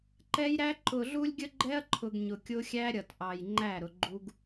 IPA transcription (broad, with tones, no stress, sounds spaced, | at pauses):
ǃ ɛ˦ j ɾ æ˦ ǃ ʊ˨ ɮ u˦ lʲ ɡʲ ə˦ ɡ͡ǃ ɛ˦ ɐ̯ ǃʰ ʊ˨ ɡ ɲ ʊ˨ kʲ ʊ˦ xʲ æ˦ ɾʲ ʌ˨ t ʔ ɑ˨ j ŋ͡ǃ æ˦˨ ɾ ʊ˨ ɡ͡ǃ u˦ ɡ